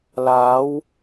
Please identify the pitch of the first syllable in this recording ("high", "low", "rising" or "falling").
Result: rising